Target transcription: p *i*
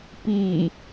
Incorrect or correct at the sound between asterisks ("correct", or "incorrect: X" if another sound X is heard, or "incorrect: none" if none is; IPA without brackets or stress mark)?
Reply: correct